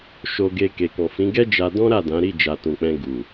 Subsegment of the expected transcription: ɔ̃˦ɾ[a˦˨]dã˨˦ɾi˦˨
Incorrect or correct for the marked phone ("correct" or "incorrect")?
correct